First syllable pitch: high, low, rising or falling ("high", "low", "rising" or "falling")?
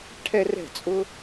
high